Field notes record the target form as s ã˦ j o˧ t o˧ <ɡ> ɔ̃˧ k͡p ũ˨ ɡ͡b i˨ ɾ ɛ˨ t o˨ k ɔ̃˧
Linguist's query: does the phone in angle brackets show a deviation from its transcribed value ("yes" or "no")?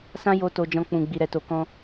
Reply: yes